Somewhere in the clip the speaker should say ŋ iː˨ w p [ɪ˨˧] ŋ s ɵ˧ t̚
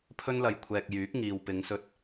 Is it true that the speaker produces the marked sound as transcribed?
yes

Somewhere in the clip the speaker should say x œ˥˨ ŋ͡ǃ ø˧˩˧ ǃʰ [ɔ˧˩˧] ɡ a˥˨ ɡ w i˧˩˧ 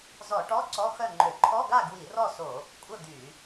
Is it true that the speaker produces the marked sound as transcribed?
no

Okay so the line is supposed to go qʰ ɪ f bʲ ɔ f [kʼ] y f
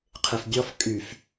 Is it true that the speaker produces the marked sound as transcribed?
yes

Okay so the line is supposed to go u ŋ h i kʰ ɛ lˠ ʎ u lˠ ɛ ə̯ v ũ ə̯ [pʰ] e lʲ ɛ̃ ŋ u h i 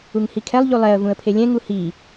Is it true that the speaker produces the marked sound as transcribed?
yes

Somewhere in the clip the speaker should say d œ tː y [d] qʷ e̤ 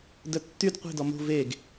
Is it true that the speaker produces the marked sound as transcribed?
yes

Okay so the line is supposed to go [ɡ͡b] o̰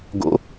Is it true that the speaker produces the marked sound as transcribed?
no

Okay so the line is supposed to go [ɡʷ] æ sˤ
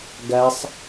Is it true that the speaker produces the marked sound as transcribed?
no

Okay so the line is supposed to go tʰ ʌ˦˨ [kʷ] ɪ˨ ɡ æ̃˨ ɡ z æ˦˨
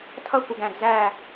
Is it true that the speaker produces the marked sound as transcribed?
yes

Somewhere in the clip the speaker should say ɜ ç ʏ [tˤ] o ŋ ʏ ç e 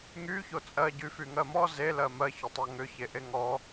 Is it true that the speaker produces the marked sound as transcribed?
yes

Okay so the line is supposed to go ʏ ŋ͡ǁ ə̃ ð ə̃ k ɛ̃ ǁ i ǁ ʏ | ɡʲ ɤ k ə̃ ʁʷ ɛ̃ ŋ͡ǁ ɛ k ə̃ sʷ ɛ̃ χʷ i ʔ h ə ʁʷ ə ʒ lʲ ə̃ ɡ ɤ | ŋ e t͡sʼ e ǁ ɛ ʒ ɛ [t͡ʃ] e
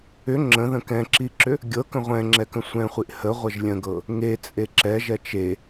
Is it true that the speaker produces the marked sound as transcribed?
yes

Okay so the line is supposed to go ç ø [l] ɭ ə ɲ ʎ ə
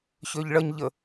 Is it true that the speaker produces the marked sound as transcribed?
no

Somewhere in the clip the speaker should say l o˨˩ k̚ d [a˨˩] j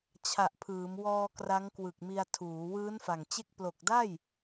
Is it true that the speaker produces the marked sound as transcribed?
no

